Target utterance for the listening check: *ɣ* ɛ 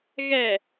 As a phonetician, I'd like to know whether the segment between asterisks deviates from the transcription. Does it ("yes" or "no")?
no